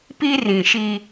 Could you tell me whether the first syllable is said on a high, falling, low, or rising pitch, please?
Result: high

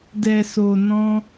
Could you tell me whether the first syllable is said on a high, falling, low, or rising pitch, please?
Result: low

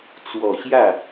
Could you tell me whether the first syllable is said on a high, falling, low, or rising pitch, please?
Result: low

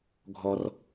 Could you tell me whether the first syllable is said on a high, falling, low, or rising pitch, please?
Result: low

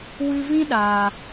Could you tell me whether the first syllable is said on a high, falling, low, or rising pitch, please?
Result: high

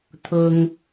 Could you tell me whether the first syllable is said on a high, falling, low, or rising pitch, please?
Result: low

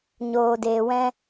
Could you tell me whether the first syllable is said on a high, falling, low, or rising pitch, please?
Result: low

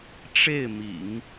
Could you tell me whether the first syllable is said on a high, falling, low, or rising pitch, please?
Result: falling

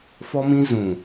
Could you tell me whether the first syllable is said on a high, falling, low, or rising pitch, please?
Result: high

